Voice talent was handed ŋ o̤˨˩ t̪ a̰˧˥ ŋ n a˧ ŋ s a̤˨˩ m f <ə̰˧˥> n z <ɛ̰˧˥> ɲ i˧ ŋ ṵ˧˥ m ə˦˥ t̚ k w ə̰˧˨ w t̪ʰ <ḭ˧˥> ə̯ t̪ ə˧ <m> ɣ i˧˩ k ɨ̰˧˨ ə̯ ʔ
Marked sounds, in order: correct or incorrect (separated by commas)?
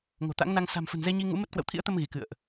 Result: incorrect, incorrect, correct, correct